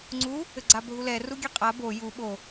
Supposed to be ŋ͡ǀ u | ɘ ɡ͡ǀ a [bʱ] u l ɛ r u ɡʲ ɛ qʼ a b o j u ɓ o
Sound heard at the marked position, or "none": bʱ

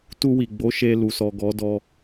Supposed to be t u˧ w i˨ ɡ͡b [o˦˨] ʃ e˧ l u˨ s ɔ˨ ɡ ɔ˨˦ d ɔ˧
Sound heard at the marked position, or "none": o˨˦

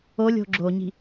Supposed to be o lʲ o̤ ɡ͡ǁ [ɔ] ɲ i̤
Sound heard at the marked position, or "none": o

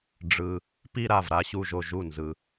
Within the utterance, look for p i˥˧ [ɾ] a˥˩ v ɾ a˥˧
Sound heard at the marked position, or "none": ɾ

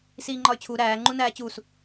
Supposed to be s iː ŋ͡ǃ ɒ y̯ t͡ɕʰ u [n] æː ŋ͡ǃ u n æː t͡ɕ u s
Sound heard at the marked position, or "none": ɾ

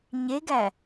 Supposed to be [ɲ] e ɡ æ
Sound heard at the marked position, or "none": ɲ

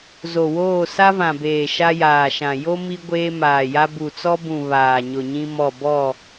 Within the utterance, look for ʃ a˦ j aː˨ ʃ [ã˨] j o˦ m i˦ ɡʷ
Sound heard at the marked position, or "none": ã˨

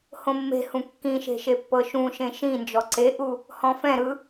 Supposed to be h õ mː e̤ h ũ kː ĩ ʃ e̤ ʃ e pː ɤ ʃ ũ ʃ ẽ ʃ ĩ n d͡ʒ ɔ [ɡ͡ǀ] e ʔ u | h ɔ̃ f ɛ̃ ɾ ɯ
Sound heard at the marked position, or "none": ǀ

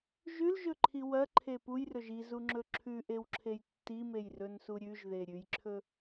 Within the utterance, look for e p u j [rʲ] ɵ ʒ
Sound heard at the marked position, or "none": r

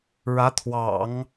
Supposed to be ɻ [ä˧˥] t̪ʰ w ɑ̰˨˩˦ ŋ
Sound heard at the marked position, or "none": ä˧˥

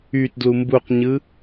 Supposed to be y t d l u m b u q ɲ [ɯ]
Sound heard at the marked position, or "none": ɯ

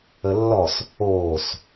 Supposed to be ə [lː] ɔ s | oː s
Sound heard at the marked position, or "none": lː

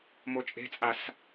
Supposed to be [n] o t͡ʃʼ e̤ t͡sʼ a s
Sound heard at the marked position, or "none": m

